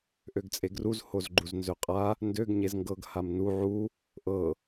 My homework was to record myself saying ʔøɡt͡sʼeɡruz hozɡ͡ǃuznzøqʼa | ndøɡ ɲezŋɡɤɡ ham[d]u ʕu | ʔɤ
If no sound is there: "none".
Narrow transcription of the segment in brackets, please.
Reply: n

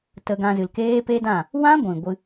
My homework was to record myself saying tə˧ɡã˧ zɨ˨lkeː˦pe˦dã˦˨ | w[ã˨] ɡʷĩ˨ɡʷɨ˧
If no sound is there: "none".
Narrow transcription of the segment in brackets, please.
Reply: ã˦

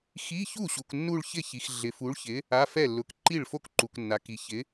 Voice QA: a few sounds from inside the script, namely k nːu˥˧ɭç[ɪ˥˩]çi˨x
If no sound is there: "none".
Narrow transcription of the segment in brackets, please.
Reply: ɪ˥˩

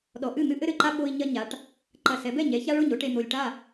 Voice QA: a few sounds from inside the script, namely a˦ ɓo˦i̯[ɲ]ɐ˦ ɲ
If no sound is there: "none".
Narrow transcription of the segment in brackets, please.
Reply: ɲ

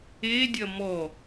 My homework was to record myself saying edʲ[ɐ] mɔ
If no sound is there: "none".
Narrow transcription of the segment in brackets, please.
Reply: ɐ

